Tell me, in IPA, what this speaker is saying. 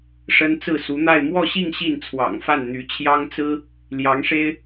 ʂ ə˥ n t͡s ɹ̩˥˩ s u˧˥ n̪ a˥˧ ɪ̯ m w ɔ˥˧ ɕ i˥˧ ŋ ɕ i˥˩ n t͡sʰ w ɑ̰˨˩ ŋ f a˥˩ n n̪ y˧˥ t͡ɕʰ j ɑ˥ ŋ t͡s ɹ̩˥ | l j ɑ˧˥ ŋ ʂ e˥ ɪ̯

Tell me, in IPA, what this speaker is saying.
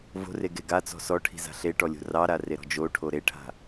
v o̤ r e ɡ e ɡ a t͡s ɔ̤ s ɔ ʈʰ i̤ z a̤ ɬ e ʈ ɔ lʲ o̤ r ɑ ɾ a r e ɾ ɔ̤ d͡ʒ o ʈʰ o ɾ e ʈʰ a̤

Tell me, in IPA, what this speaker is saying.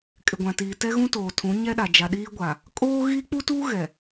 kʼ ɪ˨ ɡʷ ã˨ t iː˨ t ɛ˦ ɣ ũ˦ t oː˨ tʰ ũ˨˦ ɲ ɛ˦ ɗ a˨ d͡ʒ a˨ ɗ iː˦ ɡʷ a˨ | kʼ oː˦ ɣ i˦ k͡p u˦ t uː˦ ɣ ɛ˨

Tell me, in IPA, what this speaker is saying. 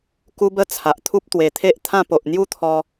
k u˦ b ə˦ t͡sʰ a˨ ʔ t̪ʰ u˦ p̚ t̪ w e˨˩ t̪ʰ e˦ ʔ t̪ʰ ã˥˧ p o˨ ʔ n̪ j u˥˧ t̪ʰ ɔ˧

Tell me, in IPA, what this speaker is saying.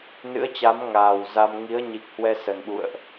n ɨ̰˧˥ ə̯ t͡ɕ a˨˦ m ŋ aː˨˩ w z a˧ m ŋ i˨˦ ə̯ ɲ i˨˩ k̚ h w ɛ˧ s ə˨˩ n ɓ ṵ˧˨ ə̯ ʔ

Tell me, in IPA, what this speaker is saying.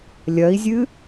lʲ ɐ i̯ zʲ ɨ

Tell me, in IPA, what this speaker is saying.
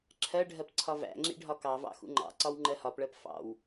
ǁʰ ɜ ɖʱ ɜ p ǀʰ ɒ v æ̰ ŋ͡ǁ ḭ ɖʱ ɒ k ɑ v ɑ̰ x ṵ ŋ͡ǃ ɑ̰ ǀ ɒ w ŋ͡ǃ ɜ h ɒ p ɭ ɜ p f ɑ̰ w

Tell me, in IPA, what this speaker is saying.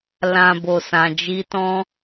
l ã˨ b o˨ s ã˨ d͡ʒ i˧ t ɔ̃˦

